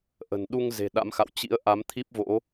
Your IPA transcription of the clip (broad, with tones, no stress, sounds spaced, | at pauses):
ʔ ə̤˨˩ n ɗ u˧ ŋ z e̤˨˩ ɗ a̰˧˥ m x a̰˧˨ w t͡ɕ ḭ˧˥ ə̯ ʔ a˨˦ m t̪ʰ i˦˥ p̚ v o̰˧˥